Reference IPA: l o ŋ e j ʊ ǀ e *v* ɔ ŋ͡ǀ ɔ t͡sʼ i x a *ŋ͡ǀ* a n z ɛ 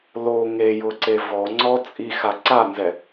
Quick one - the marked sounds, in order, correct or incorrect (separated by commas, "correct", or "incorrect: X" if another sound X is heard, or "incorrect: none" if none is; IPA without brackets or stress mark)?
correct, incorrect: ǀ